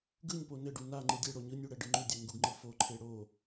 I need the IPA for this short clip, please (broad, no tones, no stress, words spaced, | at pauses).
ɡɯɲpo nɘɖu naŋ͡ǃɯ dʲeɽo ɲɯnʲu ɽɛɖɯŋ͡ǃʉdʲɛ ŋɡuɡŋ͡ǃɯfoǃʰe ɽo